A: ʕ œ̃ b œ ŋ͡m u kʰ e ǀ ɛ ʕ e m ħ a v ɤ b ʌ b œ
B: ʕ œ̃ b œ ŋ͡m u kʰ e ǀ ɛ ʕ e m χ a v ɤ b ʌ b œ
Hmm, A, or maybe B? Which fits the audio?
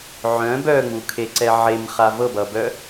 B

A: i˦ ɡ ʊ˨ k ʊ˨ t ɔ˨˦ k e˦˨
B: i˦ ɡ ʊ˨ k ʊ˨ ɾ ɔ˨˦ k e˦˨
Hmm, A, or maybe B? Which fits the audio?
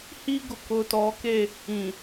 A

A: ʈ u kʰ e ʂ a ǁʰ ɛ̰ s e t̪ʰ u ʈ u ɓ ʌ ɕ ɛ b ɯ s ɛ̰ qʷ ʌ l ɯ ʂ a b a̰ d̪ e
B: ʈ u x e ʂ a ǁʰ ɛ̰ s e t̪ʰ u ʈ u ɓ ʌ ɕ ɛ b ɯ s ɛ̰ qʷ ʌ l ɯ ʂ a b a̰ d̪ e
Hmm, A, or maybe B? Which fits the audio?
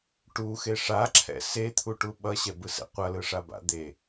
B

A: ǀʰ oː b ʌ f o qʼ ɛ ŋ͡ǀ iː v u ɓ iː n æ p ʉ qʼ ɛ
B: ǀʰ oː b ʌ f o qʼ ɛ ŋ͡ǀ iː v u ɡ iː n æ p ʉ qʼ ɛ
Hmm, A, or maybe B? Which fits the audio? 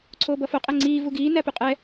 B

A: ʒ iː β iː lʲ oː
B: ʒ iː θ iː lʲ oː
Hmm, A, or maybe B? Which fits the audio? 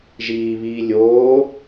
A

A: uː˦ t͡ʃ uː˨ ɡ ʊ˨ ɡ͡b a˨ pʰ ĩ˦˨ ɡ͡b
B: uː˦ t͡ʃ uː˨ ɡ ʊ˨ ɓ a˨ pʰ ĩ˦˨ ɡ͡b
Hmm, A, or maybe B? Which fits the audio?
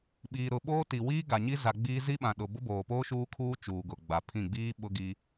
A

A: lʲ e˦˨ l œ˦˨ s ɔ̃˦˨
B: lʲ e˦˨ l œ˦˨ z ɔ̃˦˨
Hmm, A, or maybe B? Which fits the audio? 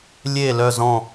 B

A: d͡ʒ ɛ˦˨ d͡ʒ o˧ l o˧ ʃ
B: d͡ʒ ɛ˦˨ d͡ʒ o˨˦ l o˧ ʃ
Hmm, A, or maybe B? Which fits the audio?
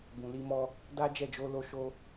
A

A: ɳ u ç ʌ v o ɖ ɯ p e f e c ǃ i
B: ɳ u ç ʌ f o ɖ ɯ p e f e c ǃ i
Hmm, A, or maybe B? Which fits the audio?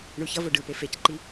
A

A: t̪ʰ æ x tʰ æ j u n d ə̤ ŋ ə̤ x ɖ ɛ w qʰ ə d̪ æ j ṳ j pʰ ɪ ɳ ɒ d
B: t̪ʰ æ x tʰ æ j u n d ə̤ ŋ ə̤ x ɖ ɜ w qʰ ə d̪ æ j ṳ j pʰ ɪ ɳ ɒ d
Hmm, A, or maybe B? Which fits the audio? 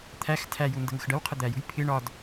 B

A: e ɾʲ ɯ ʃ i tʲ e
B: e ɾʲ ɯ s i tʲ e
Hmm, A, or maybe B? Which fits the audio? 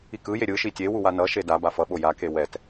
A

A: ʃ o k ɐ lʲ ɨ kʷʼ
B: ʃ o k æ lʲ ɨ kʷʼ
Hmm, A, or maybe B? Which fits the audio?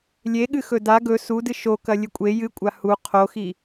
A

